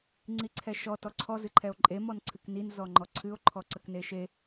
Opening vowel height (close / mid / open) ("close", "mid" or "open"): close